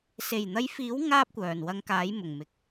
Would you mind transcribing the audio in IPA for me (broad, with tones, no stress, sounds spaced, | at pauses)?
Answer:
s e˨˩ j n̪ ɐ˨˧ j f iː˨˥ w ŋ aː˥ p̚ kʷ œː˨˩ n w ɐ˧ ŋ k aː˨˥ j m ʊ˨˩ ŋ m ɪ˨ k̚